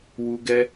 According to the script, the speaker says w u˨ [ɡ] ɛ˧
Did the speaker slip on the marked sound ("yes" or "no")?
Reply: no